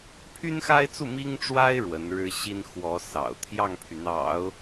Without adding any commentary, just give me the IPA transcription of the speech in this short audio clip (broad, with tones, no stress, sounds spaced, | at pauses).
pʰ y˥ n x a˥ ɪ̯ t͡s u˥˩ m i˥ ŋ ʈ͡ʂ w a˥ ɪ̯ ɻ w ə˧˥ n ɻ ɻ̩˥ ɕ i˥ n x w ɔ˧˥ s ɑ̰˨˩ ʊ̯ t̪ʰ j ɑ˥˩ ŋ pʰ y˩ n̪ ɑ̰˨˩˦ ʊ̯